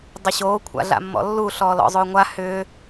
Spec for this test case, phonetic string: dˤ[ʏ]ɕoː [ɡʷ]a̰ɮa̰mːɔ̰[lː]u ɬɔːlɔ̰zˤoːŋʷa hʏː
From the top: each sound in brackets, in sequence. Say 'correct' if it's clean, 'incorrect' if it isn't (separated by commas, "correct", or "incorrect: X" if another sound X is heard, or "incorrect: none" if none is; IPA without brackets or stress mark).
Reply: correct, incorrect: kʷʰ, correct